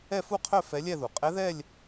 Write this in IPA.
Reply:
ɛ˥˧ f u˥˧ qʰ œ˥˧ f ɛ˧˥ lʲ ɛ˥˧ ð u˩ qʼ ɛ˧˥ ð ɛ˥˧ lʲ

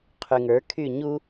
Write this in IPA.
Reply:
qʰ y ŋ ə˞ kʰ y ɲ u

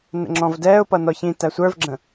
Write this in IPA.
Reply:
n ə̰ ŋ͡ǁ ɔ̃ v d ɛː ʊ̯ p ʌ n ɔ ç ĩ t æ sʷ ə˞ v ɡ͡ǁ ə̃

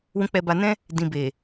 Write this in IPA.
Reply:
w ũ˧ k͡p ɛ˧ b a˧ n ɛ̃˦ | d ĩ˨ b e˨

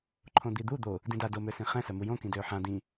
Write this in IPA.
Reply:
ǃʰ õ d̪ i d̪ u d̪ o | d ĩ d a d o m ø s ĩ χ ɛ̃ s œ m u j õ k ĩ d øː ħ ã d ĩ

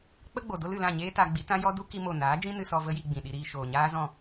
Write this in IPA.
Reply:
k͡p ə˦ ɡ͡b o˨ d o˦ l ɨ˨ l ã˦˨ ɲ eː˦ t a˧ ɡ͡b i˨˦ t ã˦ j ɔ˦ d u˦ k i˦ m o˦˨ n aː˨˦ d͡ʒ ĩ˦ n ɨ˧ s ɔ˧ v ə˦ j i˧ ɡ͡b ĩ˨ ɗ i˧ ɾ iː˧ ʃ oː˨ ɲ aː˦ z ɔ̃˦˨

